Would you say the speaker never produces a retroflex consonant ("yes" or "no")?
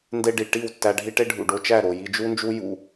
no